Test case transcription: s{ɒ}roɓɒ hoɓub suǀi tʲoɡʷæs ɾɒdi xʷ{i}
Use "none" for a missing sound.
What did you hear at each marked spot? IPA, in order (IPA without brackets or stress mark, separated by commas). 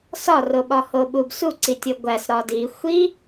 ɒ, i